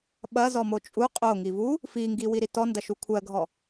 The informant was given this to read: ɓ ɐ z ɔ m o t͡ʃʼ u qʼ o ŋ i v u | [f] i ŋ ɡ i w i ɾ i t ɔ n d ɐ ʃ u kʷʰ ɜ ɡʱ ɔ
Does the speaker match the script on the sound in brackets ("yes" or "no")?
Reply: yes